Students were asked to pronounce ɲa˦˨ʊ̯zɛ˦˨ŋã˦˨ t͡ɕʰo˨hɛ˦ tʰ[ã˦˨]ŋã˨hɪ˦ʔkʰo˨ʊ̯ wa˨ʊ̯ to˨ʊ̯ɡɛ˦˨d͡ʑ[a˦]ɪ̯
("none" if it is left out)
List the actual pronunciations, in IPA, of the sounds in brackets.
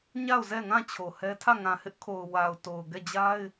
ä˦˨, a˦

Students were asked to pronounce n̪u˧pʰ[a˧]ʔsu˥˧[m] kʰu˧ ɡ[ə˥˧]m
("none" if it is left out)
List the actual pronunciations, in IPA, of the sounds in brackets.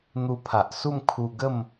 a˨, m, ə˥˧

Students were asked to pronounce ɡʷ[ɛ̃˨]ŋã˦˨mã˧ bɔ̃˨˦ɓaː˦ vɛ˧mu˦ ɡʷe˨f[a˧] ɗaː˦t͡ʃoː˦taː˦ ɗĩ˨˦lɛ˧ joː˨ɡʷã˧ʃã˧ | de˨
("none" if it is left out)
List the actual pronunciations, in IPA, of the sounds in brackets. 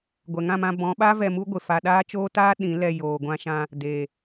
ɛ˨, a˧

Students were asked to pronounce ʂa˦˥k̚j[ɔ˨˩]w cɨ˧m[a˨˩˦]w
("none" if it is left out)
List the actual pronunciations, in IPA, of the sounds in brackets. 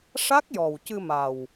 ɔ˨˩, a˨˩

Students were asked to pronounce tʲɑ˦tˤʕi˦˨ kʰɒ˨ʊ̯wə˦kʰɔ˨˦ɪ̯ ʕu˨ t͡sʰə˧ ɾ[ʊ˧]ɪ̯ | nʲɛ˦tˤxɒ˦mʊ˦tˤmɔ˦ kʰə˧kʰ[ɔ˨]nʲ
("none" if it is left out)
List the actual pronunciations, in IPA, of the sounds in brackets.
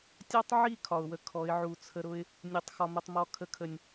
ʊ˦, ə˨

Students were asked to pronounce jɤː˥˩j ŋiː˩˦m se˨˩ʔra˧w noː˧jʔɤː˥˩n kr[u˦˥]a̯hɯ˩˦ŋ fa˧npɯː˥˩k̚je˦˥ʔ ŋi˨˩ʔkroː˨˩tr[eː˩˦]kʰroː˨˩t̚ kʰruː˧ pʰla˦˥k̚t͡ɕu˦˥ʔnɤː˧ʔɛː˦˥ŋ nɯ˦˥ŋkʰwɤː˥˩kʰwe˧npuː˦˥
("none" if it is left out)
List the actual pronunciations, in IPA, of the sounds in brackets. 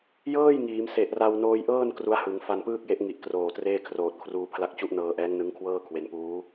u˦˥, eː˥˩

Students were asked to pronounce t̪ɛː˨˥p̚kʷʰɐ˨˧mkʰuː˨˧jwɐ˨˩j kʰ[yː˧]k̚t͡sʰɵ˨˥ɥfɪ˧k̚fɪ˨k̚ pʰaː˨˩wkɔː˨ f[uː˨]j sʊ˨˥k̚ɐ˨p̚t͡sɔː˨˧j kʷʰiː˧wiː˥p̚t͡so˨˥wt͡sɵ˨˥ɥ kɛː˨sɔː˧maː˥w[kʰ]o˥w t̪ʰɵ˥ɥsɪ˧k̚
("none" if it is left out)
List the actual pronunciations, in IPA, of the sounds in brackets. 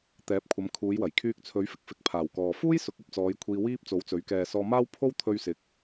yː˧, uː˥, pʰ

